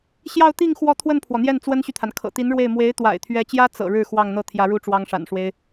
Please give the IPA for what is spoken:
ɕ j ɑ˥˧ ʊ̯ t̪ i˥˧ ŋ x w ɔ˥˧ t̪ʰ w ə˥˩ n pʰ w ɔ˩ n̪ j ɛ˥˩ n t͡s w ə˥ n ɕ y˨ t̪ʰ a˩ n kʰ ɤ̰˨˩ t̪ i˧˥ n ɻ w e˥˩ ɪ̯ m w e˧˥ ɪ̯ t̪ w a̰˨˩ ɪ̯ t̪ʰ ɥ ɛ˧˥ t͡ɕ j ä˥ t͡s ɤ̰˨˩ ɻ ɻ̩˥˧ x w ɑ˥˧ ŋ n̪ ɤ˥˩ t̪ʰ j ä˧˥ ɻ u˥ ʈ͡ʂ w ɑ˥ ŋ ʂ a̰˨˩ n ʂ w e˥ ɪ̯

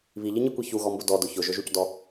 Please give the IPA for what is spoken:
β i ʎ i ɲ i kʷ i ç u ɣ ɔ m b ʊ d ɔ d ʊ ç ʊ ʒ ʊ ʒ u c d ɔ

